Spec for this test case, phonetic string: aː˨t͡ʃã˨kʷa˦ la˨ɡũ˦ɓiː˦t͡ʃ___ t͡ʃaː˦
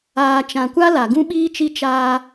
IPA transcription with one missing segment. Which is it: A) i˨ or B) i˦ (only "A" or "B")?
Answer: B